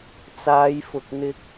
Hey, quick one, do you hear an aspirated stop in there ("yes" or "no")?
no